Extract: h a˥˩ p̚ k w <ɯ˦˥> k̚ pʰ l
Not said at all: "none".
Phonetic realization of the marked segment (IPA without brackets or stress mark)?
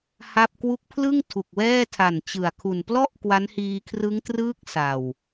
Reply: u˦˥